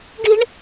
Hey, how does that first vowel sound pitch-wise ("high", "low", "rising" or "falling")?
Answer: high